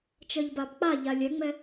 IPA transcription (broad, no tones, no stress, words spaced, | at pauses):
t͡ʃɜʎbabk͡paʎa lʲɛŋ͡mɛ